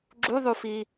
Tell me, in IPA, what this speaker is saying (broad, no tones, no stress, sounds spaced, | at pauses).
ɡ͡ǁ u ðˤ u f i